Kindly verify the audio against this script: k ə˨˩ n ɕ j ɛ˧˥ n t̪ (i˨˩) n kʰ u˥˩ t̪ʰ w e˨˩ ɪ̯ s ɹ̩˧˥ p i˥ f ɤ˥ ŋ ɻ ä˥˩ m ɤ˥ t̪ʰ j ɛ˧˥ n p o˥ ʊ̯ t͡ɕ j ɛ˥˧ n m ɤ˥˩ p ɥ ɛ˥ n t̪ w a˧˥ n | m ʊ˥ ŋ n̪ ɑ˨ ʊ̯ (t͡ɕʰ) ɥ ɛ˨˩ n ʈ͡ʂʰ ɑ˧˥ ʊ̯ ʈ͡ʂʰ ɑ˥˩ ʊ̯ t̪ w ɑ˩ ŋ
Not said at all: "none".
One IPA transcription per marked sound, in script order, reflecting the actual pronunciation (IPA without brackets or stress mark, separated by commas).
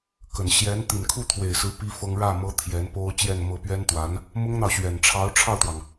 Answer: i˨˩, ɕ